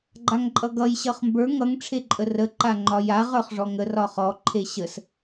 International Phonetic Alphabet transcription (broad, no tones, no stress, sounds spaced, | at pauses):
ɡ͡ǃ a ŋ ǃʼ ʌ ɡ ʌ j ɕ ʌ χ m b ə˞ ŋ ʌ ŋ ʈ͡ʂʰ e ǃʼ ə r ə ǃ a ŋ͡ǃ ɒ j a ʁ ə˞ χ ʐ ɔ ŋ ə r ɒ χ ɔ ǃʰ e ɕ ə s